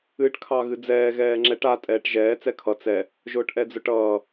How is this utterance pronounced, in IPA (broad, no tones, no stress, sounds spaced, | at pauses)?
ɨː ʈ kʰ ɑ ɣ ɨ d͡z ɛː ɣ ɛː ŋ͡ǁ ɛ ʈ a tʼ ɛː ʈ ʒ ɛː t͡s ɛ kʰ ʌ t͡s ɛ | ʒ ʊː ʈ ʔ ɛ d͡z ʊ ʈ ʌː